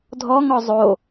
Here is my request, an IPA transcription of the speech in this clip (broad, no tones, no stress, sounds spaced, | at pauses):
dʱ ɔ ŋ ɔ zˤ o